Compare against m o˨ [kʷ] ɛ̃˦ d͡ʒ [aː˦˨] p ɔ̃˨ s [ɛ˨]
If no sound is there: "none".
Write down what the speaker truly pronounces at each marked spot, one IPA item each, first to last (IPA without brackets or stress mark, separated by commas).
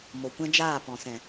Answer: kʷ, aː˦˨, ɛ̃˨